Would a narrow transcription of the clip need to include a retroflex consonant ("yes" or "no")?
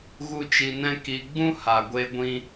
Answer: no